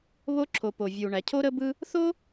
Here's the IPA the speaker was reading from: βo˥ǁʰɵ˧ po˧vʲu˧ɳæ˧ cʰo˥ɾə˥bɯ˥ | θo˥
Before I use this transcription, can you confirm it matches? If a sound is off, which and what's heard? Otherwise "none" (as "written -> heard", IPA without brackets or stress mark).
ɵ˧ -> o˧